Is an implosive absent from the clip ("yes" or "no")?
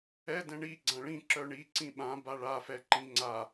no